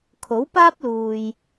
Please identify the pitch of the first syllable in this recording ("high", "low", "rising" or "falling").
rising